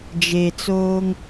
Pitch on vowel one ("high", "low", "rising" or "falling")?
low